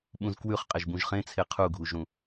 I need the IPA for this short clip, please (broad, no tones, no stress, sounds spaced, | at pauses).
ɓ ũ z k w ʉ χ qʼ e ʒ b ũ ʒ χ ẽ t͡sʰ e qʰ u ɡʱ u ʒ ɾ ũ